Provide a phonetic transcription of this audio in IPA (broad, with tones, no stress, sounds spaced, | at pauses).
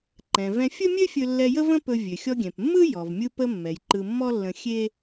ǃ ɛ̃˩ v ɛ̃˧ fʲ ɵ˥ mʲ ø˥ fʲ ɵ˧ lː ɛ˧ j ə˥ v ə̃˥ p ɵ˧ vʲ ø˩ xʲ ɔ˧ ɡʲ ɛ̃˩ p mː ɯ˥ j ɔ˩ v mʲ ɯ˧ p ə˧ mː ɛ˩ j ǃ ɯ˧ mː ɔ˥ lː ə̃˧ xʲ e˥